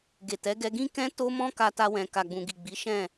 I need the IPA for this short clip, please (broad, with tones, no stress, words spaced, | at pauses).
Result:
ɡe˨tɛ˨˦ɡɛ˧ ɡĩ˦kɛ̃˦ to˦mɔ̃˦ ka˧ta˧wɛ̃˨ ka˨ɡ͡bũ˨ɡi˨ɡ͡bi˨˦ ʃɛ̃˦˨